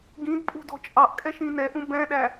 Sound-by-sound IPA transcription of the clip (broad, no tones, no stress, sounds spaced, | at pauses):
ɡ ĩ d pʼ ṳ d ɔ̤ t͡ʃʼ ɑ ʔ kʼ ɛ ʃ ĩ n ɛ ʔ ũ b ɛ̃ ɗ æ